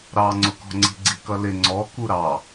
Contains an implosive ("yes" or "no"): no